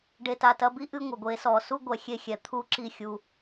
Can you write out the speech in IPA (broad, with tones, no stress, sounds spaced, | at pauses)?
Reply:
ɖ e˨ t a˨ t ɐ˧ b i˦ ʔ ɨ˧ ŋʷ ɐ˨ ɡʷ eː˨˦ s ɔː˨ s u˦ ɡʷ ɛ˨ xʲ e˧ xʲ ɛ˨ t̪ʰ u˦˨ ǁ i˦˨ xʲ u˧